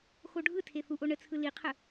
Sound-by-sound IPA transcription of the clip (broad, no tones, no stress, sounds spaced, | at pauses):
x o ɖʱ ɯ tʰ e θ u ʔ o ɳ ə t͡sʰ ɯ l i qʰ ə